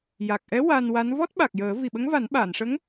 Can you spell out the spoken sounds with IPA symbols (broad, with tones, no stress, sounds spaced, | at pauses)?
j a˨˩ k̚ ʔ ɛ˧˥ w a˧ n w a˧˥ n v ɔ˦˥ t̚ ɓ a˨˩ k̚ j əː˨˩˦ v i˨˩ ɓ ə˧˥ ŋ v a˨˩˦ n ɓ aː˨˩˨ n ʂ ə˧˥ ŋ